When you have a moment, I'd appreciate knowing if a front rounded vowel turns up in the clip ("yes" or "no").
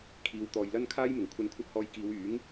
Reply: yes